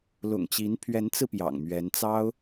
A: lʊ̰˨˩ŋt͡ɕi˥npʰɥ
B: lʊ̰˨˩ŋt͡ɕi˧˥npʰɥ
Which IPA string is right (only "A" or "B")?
B